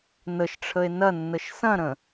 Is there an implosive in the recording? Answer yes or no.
no